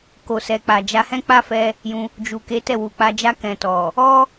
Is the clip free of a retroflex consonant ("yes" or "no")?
yes